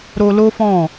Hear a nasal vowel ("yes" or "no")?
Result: yes